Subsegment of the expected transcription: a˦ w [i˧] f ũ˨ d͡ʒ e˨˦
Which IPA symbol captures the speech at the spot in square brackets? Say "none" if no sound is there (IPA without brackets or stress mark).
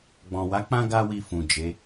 i˧